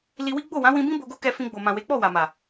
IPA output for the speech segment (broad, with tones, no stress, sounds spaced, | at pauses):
l i˧ w i˦ ɡ͡b o˦˨ w ã˨˦ w ĩ˧ b ĩ˦ b o˧ ɡ o˦ k ɛ˧ f ĩ˧ ɡ͡b o˨ m ã˨ w e˨˦ k͡p ɔ˦˨ w a˨ m a˨